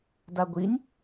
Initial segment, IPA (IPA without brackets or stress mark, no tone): d